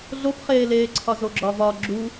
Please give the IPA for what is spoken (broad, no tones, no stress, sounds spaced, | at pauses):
ɮ o p χ eː l eː ǀʰ ɒ z o ɡ͡ǁ ɒ v ɒ ɡ͡ǁ u